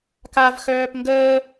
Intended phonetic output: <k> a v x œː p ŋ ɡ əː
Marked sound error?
no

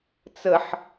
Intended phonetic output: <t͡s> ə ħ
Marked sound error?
no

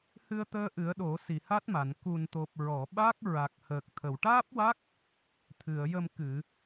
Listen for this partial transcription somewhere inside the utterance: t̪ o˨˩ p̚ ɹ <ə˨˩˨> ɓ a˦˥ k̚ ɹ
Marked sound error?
yes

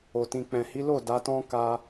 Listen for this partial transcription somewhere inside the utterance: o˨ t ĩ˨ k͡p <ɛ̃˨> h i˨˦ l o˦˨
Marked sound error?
no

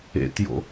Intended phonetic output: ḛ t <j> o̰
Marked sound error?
no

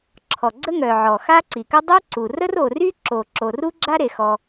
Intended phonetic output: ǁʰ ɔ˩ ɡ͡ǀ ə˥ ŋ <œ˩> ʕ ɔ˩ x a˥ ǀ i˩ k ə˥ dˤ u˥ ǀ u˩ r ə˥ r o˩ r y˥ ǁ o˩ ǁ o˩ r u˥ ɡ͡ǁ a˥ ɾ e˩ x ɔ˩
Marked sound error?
no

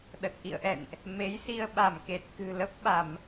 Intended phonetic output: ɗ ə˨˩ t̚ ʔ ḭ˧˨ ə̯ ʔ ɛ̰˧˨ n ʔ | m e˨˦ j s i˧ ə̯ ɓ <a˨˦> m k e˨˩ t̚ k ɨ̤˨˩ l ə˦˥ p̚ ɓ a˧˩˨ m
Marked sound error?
yes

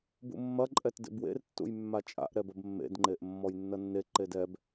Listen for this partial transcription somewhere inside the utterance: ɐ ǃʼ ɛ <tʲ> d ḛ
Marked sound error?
yes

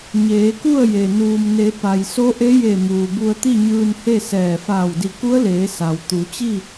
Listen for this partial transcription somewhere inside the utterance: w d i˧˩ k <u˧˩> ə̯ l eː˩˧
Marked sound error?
yes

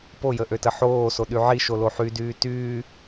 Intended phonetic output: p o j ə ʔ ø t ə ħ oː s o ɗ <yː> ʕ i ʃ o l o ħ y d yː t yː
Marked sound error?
yes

